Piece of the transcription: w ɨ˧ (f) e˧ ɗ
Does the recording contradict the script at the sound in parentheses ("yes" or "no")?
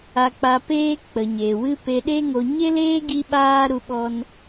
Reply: yes